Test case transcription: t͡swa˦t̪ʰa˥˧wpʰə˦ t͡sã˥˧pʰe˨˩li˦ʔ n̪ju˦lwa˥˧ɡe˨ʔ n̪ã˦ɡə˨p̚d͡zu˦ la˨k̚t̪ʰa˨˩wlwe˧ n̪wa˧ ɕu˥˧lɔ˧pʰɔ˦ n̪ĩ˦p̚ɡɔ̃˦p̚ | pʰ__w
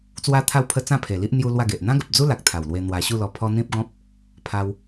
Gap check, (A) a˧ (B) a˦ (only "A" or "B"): A